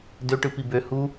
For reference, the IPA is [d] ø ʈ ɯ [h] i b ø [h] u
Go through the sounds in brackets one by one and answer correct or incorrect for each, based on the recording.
correct, incorrect: p, correct

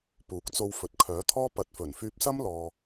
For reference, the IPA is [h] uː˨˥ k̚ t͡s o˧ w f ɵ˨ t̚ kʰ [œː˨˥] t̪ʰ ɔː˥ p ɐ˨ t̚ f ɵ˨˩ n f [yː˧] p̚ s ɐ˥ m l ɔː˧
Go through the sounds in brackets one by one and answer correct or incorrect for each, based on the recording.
incorrect: p, correct, correct

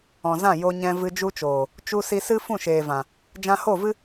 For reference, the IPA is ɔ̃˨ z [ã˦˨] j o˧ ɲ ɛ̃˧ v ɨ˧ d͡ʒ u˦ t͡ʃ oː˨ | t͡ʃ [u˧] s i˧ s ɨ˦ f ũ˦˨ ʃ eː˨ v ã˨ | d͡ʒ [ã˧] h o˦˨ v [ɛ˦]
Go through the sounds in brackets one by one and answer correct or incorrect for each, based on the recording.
correct, correct, correct, incorrect: ɨ˦

